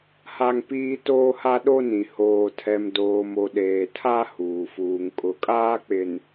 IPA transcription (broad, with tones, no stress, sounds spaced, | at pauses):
h a˦ ŋ p iː˦ t oː˦ h a˦ ɗ o˦ n ĩ˨ h oː˨ tʰ ɛ˨ m d oː˨ m o˨ ɗ eː˨ tʰ a˦ h uː˨ f uː˨ ŋ kʼ ʊ˨ kʼ aː˦ k͡p ɪ˨ n